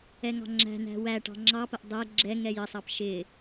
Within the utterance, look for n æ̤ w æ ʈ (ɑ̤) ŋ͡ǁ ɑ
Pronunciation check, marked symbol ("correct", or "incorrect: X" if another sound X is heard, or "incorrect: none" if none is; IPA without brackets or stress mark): correct